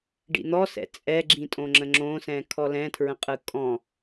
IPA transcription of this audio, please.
ɖ ḭ n̪ ɔ s ɛ̰ t͡sʼ ɛ ɡ͡ǁ ĩ tʼ õ ŋ͡ǁ ə̃ ŋ͡ǁ õ s ɛ̃ kʰ ɔ l ɛ̃ tʰ ɹ ə̃ qʼ ɯ kʼ ɔ̃

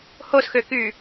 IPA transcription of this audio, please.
h o s x ø k y

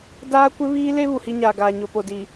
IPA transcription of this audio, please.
d aː˦ kʷ ɪ˦ β iː˦ l e˦ β u˨ h i˦ ɲ aː˨ ɡ aː˨ ɲ o˨ p o˨ d i˨

